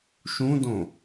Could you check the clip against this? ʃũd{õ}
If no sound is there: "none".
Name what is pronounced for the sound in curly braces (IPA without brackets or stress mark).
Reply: õ